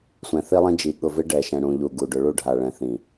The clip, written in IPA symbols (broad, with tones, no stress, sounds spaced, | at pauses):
sʷ ɛ̃˨ θ i˦ lˠ ĩ˦ d͡ʒ i˨ ɠ ʊ˨ v ɪ˦ ɖ ɛ˨ ʃ ɛ̃˨ ɽ ũ˨ ʎ u˨ ɡ u˨ ɖ ʊ˨ ɭ u˦˨ ɖʱ a˨ ɭ ɛ̃˨ θ ĩ˨